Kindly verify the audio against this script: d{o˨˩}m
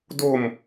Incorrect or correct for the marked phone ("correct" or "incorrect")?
incorrect